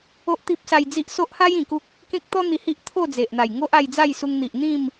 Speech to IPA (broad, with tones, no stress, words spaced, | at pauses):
o˦ʔt̪i˦p̚sa˧jd͡zi˦ʔ so˦ʔha˦j ĩ˨˩ku˦k̚ | kẽ˦k̚t̪ɔ˦ n̪i˧hi˦ʔ t̪ʰo˥˧d͡ze˨ʔn̪a˨˩jŋo˦ʔ a˧jd͡za˥˧jsu˧ŋ n̪i˨ʔn̪ĩ˥˧m